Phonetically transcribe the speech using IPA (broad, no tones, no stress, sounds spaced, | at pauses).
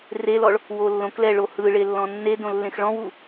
r e l ɔ ɭ | w o lː õ k l ɛ ɭ o h ɯ ɭ e lː ɔ̃ nː e d õ lː ẽ x ɭ ɔ̃ w u